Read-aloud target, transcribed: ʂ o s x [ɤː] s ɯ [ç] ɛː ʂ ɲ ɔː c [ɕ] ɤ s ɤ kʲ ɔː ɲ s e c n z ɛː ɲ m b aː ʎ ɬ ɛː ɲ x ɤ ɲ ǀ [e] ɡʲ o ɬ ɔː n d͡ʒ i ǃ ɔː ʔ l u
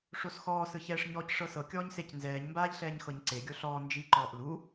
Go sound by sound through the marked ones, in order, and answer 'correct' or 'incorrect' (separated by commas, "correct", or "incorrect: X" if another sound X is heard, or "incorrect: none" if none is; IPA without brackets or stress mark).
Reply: incorrect: ɔː, correct, incorrect: ʂ, correct